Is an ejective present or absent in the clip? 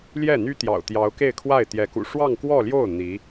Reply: absent